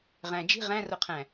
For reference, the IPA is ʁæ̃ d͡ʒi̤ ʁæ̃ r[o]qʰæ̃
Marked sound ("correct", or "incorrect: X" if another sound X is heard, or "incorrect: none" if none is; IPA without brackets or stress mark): correct